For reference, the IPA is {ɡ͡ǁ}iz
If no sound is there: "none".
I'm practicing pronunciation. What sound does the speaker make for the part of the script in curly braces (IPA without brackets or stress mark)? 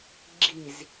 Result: ɡ͡ǁ